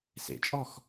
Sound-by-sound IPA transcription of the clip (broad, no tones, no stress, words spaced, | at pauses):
sḛt͡ʃʼɔx